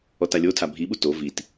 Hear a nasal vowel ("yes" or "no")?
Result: no